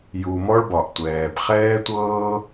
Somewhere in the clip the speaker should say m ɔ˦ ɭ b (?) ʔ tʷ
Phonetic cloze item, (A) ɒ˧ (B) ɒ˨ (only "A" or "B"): B